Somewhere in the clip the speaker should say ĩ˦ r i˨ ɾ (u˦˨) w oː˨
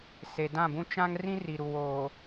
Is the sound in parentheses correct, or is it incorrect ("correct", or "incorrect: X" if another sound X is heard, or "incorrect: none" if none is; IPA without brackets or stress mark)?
incorrect: u˨